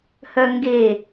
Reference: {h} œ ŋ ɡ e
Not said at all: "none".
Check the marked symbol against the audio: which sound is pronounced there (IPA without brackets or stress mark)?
h